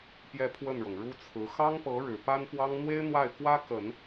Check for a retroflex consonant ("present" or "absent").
present